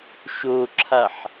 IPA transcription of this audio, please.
ʃoǁʰaħ

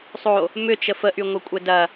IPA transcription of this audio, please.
sˤo | mʏt͡ʃə fəʔyŋʷœkʷʼɛ dɐ

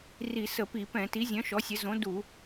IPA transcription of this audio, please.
ri˧˩˧ sə˧˩˧pi˧˩˧pɛ̃˧˩˧ ti˨˥zʲœ̃˨˥ʃɔ˨˥sʲə˨˥ zõ˨˥ du˧˩˧

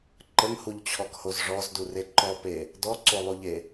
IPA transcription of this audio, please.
ǃəŋhuʎt͡ɕʰɔkhoz ʐɔzdure ǃɔpe | dɔǀolˠuʎe

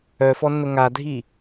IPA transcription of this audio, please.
œfɔnːʊ ŋadʱi

